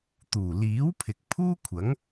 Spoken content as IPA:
t̪ uː˨˩ l iː˨˥ w pʰ ɪ˨ k̚ pʰ uː˥ kʷʰ ɐ˨˥ ŋ

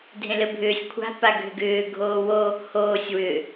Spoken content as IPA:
dʱ ẽ l ɘ bʱ ʏː sʲ kʷʰ a̤ p a ɡʱ ʏ ɡ ʏː ɡʱ oː w o | h oː sʲ w ʏ

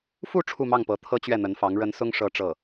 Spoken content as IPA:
f u˥˧ ʈ͡ʂʰ u˥˧ m ɑ˥˩ ŋ p ɤ˧˥ t̪ʰ ɤ˥ t͡ɕ ɥ ɛ˥˩ n̪ ə˧˥ n f ɑ˧˥ ŋ ɻ ə˧˥ n s ʊ˥ ŋ ʂ ɤ˥ ʈ͡ʂ ɤ˥˩

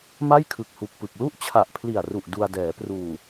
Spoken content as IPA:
m a˥˩ j kʰ ɯ˨˩ k̚ h u˨˩ k̚ p ɯ˨˩ k̚ l u˥˩ ʔ t͡ɕʰ a˨˩ ʔ pʰ l i˨˩ a̯ r u˨˩ ʔ d u˧ a̯ d ɛː˩˦ p r uː˨˩

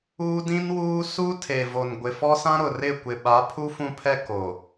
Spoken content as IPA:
uː˦ d ĩ˦ n w uː˦ s u˦ tʰ e˨ v o˨ n ɡʷ ɪ˨ f ɔ˦ s ã˦ ɾ ʊ˨ r ɪ˦˨ kʷ ɪ˨ ɓ a˨˦ pʰ u˦ f ũ˦ pʰ ɛ˦ k o˨

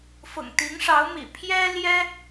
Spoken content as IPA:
f ʊ̰˨˩ ŋ t̪ i˧˥ ŋ ʂ ɑ˧˥ ʊ̯ m ḭ˨˩ pʰ j ɛ˥ l j ɛ˥

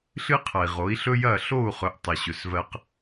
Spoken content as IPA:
ɬ ɨ˦ qʰ ɐ˨ i̯ ʁ o˨˦ i̯ ɬ ɵ˦ j ɐ˦˨ ɬ o˦˨ u̯ χ ɵ˨ ʔ tˤ ɐ˨ ɕ ɵ˨ s v ɜ˦ q

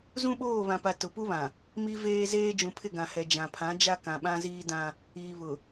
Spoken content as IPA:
z ũ˦ ɓ oː˦˨ β ã˨ p a˨ t ʊ˨ p u˦ β ã˨ | m i˦ v eː˦ z eː˦ d͡ʒ ũ˨ pʰ ɪ˦˨ ɡ ã˨ h ɛ˨ d͡ʒ ã˨ pʰ ã˨˦ d͡ʒ a˦ k ã˨ ɓ ã˦ z iː˦ d ã˦ | iː˨ β ʊ˨

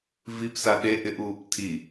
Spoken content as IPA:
v i p s a ɗ e ʔ ɪ ʔ uː p tʰ i

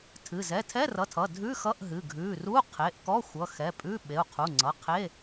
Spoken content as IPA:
tʰ ɨ˩˧˩ z ɛ˩˧˩ tʰ ɛ˧˥˧ r ʌ˩˧˩ tʰ ʌ˩˧˩ dʱ ʉ˧˥˧ x ʌ˧˥˧ ʔ ɦ ɨ˩˧˩ ɡʱ ʉ˩˧˩ r u˧˥˧ qʰ e˩˧˩ ʔ k ɔ˧˥˧ xʷ ʌ˩˧˩ x ɛ˩˧˩ pʼ ʉ˧˥˧ ɓ e˩˧˩ u̯ qʰ u˩˧˩ ŋ͡ǀ ʌ˩˧˩ qʰ e˧˥˧

